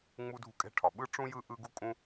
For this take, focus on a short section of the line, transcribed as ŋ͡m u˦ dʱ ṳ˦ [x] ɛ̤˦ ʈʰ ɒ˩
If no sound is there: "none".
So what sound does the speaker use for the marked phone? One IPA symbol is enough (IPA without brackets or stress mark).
kʼ